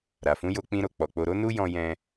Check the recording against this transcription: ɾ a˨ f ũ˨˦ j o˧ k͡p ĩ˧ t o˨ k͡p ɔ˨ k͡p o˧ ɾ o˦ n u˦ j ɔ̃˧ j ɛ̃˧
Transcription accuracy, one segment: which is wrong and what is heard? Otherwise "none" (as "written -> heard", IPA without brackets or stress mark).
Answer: t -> ɾ